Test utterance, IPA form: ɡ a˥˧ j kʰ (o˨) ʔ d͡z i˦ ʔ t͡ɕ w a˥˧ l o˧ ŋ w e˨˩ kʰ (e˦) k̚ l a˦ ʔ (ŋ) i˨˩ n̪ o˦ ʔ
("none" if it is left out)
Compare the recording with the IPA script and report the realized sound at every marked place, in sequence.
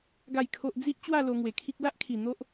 o˦, i˦, kʰ

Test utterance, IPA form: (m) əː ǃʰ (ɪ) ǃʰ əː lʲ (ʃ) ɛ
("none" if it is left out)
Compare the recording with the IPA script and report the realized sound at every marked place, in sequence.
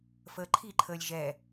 f, i, ʒ

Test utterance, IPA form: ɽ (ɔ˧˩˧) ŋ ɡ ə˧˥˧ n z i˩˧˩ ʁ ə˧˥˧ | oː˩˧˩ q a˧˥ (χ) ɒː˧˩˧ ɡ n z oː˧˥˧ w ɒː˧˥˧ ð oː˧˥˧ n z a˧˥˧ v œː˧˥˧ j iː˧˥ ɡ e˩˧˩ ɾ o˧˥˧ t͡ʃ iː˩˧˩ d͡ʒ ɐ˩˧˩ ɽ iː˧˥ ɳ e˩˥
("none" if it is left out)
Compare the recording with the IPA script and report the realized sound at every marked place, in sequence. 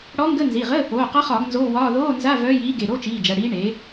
ɔ˧˥, χ

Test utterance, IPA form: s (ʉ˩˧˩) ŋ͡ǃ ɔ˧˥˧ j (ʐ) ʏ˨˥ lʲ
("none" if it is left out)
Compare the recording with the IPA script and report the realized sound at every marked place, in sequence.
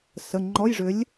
ə˩˧˩, ʐ

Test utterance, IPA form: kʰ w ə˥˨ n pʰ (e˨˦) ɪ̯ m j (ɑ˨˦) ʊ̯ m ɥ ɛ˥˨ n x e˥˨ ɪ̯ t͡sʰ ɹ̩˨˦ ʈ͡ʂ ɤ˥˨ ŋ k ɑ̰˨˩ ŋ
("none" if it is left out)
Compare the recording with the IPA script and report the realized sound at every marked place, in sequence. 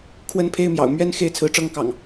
e˦, ɑ̰˨˩

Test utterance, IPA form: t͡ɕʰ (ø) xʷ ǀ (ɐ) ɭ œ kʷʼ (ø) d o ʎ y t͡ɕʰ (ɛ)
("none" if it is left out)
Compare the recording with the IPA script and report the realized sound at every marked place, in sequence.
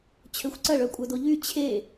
ø, ɐ, œ, e

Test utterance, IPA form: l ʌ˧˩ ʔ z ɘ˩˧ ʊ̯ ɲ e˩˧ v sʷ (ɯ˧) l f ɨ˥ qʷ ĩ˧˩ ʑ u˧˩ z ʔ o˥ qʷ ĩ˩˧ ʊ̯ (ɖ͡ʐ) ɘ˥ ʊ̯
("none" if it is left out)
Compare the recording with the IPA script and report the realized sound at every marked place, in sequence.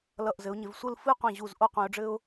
ɯ˥˧, ɖ͡ʐ

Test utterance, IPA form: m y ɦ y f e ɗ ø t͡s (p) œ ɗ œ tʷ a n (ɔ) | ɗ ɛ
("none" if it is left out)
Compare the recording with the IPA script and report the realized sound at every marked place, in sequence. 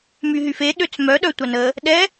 m, ə

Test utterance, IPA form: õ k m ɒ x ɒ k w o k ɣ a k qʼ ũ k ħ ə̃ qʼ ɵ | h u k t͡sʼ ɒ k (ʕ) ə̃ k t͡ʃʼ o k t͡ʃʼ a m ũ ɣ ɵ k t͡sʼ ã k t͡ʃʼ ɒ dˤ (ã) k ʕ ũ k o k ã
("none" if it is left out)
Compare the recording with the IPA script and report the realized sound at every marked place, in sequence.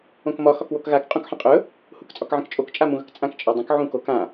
ʕ, ə̃

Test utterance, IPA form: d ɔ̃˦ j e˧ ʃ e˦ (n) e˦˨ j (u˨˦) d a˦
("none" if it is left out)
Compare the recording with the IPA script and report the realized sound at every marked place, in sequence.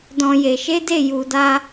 d, u˧

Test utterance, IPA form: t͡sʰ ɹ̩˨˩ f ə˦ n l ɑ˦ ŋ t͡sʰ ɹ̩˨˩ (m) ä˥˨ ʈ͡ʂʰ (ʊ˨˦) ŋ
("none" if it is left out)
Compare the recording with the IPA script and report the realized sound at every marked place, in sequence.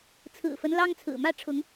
m, ʊ˨˦

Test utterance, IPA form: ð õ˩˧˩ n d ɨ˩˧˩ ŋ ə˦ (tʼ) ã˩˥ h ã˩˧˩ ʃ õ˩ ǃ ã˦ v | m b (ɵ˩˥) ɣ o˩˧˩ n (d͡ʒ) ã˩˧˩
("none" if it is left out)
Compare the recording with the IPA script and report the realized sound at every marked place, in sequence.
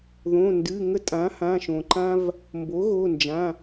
tʼ, o˩˥, d͡ʒ

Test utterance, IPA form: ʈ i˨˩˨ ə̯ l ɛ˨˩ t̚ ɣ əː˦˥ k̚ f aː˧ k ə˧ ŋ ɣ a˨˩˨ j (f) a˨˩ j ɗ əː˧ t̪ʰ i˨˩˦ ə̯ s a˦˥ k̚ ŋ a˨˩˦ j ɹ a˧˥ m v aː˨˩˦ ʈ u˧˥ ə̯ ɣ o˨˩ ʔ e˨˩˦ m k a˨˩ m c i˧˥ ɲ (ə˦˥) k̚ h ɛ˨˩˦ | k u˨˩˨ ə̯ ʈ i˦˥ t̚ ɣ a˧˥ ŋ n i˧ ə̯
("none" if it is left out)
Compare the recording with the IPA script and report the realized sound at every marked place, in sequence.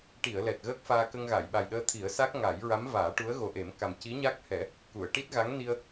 ɓ, a˦˥

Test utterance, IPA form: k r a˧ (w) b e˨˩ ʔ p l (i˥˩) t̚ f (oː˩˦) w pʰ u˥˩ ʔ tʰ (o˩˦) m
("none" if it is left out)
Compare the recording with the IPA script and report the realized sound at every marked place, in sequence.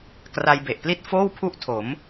j, i˥˩, oː˥˩, o˩˦

